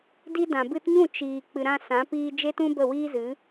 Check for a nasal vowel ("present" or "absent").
present